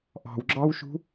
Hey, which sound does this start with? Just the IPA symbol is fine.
ʔ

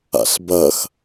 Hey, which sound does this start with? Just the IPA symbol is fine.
a̰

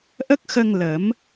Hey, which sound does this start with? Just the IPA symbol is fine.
ʔ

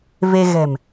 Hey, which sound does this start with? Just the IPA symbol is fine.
v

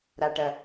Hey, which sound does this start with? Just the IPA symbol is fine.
ɾ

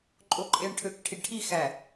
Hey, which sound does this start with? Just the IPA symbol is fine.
ǃʼ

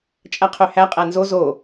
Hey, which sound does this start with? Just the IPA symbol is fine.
t͡ʃʼ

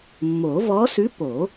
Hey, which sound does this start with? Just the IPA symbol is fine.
mː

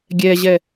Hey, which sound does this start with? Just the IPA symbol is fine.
ɡʲ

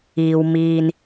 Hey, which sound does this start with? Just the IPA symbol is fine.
iː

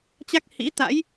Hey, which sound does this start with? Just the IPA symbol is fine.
t͡ɕ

